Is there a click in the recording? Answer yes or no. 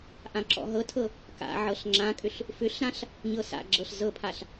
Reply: yes